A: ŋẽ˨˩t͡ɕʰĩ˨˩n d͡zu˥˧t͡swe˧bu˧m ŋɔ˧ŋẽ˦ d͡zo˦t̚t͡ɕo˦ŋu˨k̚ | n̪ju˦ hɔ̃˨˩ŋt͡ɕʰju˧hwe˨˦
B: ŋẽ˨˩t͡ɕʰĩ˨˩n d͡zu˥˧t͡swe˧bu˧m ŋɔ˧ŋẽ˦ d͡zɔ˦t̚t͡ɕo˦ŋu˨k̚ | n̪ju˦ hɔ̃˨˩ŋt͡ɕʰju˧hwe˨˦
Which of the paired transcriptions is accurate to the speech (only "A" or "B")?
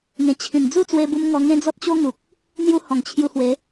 B